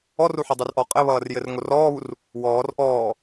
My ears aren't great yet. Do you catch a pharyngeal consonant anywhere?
yes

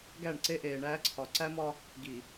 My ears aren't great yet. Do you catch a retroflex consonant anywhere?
yes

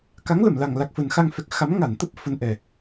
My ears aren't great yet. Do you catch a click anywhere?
no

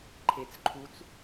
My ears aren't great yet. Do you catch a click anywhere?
yes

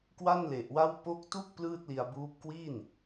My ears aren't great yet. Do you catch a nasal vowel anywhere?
no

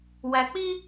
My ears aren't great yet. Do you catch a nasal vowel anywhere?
no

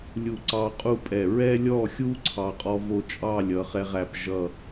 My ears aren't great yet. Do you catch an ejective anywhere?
yes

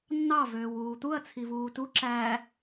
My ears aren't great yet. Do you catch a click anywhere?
yes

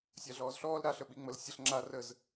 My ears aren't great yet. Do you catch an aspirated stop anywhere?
no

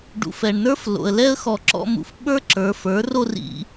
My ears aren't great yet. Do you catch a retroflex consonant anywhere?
yes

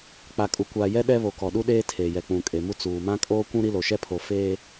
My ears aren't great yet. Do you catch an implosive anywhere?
yes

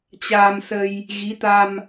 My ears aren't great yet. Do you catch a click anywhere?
no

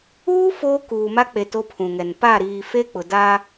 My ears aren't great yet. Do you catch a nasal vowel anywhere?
yes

